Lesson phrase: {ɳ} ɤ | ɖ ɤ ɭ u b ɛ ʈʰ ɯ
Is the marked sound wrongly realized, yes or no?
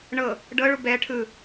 no